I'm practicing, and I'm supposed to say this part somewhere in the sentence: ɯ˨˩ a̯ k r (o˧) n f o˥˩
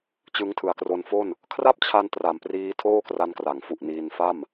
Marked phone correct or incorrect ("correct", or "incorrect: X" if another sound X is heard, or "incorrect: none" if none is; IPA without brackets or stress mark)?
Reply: correct